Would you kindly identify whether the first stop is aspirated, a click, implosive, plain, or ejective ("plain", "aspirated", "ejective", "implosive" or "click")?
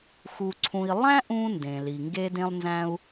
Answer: click